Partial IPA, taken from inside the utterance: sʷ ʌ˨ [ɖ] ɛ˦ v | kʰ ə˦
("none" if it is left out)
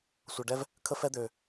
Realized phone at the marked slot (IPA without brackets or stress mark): ɖ